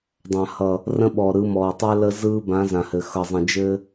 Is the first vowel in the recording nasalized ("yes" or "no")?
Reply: yes